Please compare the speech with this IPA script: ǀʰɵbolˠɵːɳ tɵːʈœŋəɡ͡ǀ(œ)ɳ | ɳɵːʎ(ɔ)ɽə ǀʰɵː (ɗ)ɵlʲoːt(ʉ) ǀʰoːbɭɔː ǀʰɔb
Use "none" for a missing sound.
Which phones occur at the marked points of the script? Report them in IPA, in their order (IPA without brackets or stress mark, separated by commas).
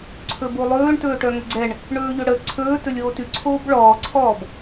ɛ, ɵ, t, ʉ